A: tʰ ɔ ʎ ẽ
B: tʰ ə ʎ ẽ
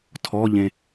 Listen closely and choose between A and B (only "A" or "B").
A